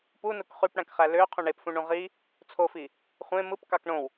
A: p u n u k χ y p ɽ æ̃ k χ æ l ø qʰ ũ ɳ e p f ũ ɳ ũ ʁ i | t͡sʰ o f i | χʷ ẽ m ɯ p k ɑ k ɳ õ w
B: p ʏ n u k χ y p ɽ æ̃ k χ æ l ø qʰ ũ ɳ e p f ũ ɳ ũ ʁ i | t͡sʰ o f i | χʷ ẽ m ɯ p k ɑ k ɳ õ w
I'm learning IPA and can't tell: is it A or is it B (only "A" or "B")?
A